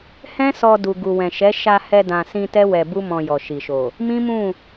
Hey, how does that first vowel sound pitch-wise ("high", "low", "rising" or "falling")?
high